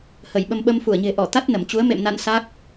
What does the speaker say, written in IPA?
h ə˧˩ j ɓ ə˧ m ɓ ə˧ m f u˧˩ ə̯ ɲ e̤˨˩ ʔ ɔ˧˩ t̪ a˦˥ t̚ n ə˧˩ m t͡ɕ u˨˦ ə̯ m ḛ˧˨ m n a̰˧˨ n s a˦˥ k̚

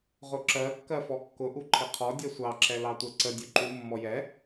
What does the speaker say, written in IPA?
ʁ ʊ ǁ ɜ kː ɜ f ɔ kː ʊ ʔ u ǃʰ ɪ qʰ ɔ dʲ ɛ sʷ ɑ ǁ ɛ l ɑ tʷ ɜ ǀ ə dʲ ʊ ǃ u mː ɔ j ɛ

